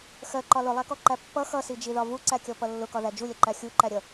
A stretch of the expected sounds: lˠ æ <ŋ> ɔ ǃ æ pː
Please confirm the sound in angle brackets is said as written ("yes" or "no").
no